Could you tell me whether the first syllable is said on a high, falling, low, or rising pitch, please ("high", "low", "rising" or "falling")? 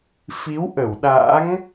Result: rising